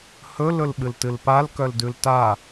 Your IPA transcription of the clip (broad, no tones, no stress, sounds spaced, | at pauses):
h ɵ l ɵ l ɓ ɨ l t ɨ l p a l k œ l d ʉ l t a